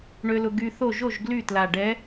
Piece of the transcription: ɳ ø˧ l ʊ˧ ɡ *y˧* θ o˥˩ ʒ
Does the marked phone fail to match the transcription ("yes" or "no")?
no